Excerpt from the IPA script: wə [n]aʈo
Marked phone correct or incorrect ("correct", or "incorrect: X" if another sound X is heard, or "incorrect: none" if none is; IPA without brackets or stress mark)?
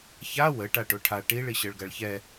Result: incorrect: ʈ